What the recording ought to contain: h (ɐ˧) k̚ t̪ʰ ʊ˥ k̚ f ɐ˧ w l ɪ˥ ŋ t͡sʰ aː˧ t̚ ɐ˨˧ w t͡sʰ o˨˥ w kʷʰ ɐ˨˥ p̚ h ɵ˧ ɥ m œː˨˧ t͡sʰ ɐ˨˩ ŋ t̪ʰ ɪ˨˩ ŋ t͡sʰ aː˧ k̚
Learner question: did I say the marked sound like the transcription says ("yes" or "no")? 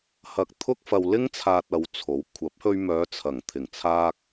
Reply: yes